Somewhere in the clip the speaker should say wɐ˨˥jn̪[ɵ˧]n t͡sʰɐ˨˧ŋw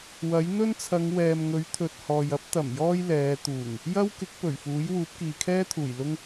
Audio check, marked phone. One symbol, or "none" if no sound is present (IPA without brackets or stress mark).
ɵ˥